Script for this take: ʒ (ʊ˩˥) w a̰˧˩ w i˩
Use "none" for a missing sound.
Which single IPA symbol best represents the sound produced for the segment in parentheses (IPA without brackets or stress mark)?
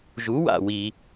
u˩˥